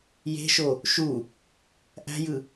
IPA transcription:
j e̤ ʃ o | ʃ u | ʔ æ̤ j ɯ

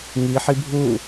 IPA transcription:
ŋ i ħ i bʱ u

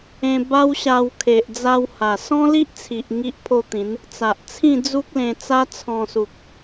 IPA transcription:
ẽ˧ b a˦ w ɕ a˧ w kʰ e˨ ʔ d͡z a˧ w h a˨˩ s ɔ̃˦ l i˦ ʔ t͡sʰ i˨ ʔ ŋ i˦ ʔ pʰ o˥˧ t̪ ĩ˨˦ n | t͡s a˨ ʔ t͡sʰ ĩ˥˧ d͡z u˦ k̚ l ẽ˧ t͡s a˦ t͡sʰ ɔ̃˧ s u˨ k̚

